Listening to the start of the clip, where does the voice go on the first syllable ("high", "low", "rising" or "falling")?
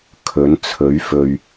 rising